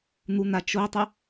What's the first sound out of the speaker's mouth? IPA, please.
n̪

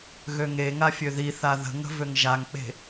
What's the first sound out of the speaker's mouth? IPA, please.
ɣ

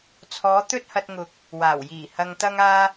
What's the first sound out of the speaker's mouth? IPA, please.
t͡sʰ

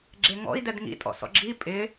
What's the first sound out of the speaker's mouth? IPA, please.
ɡ͡ǁ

